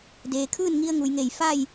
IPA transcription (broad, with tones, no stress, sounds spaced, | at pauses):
d eː˩ kʰ ɯː˥˨ n ŋ i˧ ə̯ ŋ u˩ j ŋ e˧˩ j f a˥˨ j